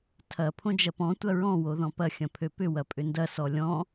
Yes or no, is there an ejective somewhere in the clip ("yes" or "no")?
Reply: yes